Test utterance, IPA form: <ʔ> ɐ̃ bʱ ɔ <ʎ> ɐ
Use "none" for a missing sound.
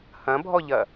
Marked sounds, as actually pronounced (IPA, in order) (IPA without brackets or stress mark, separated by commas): h, ʎ